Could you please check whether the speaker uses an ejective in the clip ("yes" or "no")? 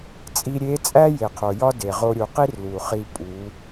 yes